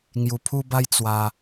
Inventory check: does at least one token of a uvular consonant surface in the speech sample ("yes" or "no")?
no